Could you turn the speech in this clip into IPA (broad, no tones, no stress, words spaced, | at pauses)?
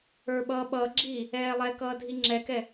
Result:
ə˞ɓʌːɓʌːɡ͡ǁiː | ɛːlˠɛkʌː dʱiŋ͡ǁɛkɛ